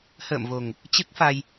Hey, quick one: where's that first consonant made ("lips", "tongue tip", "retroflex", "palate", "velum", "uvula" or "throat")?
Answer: throat